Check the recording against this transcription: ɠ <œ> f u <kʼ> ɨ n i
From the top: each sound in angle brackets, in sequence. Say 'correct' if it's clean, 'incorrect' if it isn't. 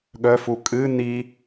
correct, correct

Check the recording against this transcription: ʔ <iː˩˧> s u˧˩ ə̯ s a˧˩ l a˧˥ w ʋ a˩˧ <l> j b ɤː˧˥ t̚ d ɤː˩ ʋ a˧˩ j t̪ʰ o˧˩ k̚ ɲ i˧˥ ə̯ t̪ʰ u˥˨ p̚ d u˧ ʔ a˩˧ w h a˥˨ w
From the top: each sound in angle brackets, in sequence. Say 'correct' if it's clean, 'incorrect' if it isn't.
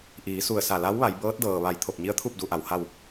correct, incorrect: none

